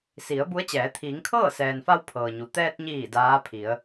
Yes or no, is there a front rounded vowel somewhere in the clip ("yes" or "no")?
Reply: no